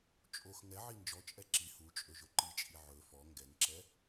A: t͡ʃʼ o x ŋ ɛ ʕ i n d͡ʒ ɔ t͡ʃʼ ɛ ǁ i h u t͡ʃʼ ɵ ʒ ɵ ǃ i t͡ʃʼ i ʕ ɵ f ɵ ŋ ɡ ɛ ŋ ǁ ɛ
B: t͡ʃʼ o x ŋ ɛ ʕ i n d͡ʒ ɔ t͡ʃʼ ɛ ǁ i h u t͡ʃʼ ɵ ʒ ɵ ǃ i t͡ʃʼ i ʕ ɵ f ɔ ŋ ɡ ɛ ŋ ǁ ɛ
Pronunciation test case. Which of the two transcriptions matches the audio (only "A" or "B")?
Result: B